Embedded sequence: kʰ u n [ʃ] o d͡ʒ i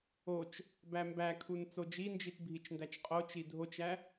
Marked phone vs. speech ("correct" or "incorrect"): incorrect